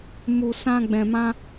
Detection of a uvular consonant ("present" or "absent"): absent